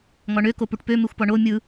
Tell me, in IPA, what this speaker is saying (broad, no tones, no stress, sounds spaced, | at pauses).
ŋ ɔ ɳ ø k o p u ʈ p ø m e xʷ p ɔ ɳ o mʲ ɯ